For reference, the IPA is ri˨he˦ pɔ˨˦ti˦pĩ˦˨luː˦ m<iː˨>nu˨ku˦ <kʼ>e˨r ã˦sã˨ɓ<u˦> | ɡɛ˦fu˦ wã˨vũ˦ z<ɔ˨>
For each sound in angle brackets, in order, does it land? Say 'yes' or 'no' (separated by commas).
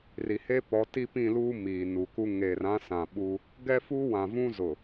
yes, no, yes, no